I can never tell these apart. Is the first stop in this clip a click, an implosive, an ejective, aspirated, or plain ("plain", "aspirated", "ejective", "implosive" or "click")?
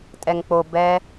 ejective